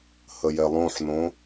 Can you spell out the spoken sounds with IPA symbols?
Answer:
h ə j ɛ lˠ õ ħ n õ

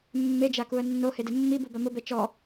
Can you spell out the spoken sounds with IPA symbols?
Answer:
mː e d͡ʒ a k u ə̯ nː o h e d ɪ mː i b u b a m ʊ b ɛ t͡ʃ ɔ

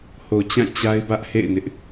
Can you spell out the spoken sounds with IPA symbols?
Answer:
h o˨ t͡ɕ ã˦˨ t͡ɕ a˦ ɪ̯ b ä˦ ʔ h ḛ˦˨ ɪ̯ n ɪ˦ ʔ

